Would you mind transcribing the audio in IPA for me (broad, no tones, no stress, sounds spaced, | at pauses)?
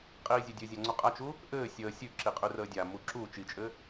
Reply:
qʼ iː zʲ ɘ dʲ ɘ zʲ a ŋ͡ǀ u qʼ a t͡ʃ u | ʔ ɘː sʲ əː sʲ ʉ ǁ i qʼ ʉ r əː dʲ a m u ǁ u t͡ʃ i t͡ʃʼ ɘ